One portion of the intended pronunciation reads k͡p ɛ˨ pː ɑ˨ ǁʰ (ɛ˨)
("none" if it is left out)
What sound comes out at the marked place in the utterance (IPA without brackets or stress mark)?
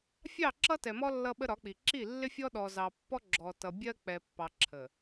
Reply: ə˨